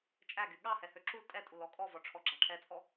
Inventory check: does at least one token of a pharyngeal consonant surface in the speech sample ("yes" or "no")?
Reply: no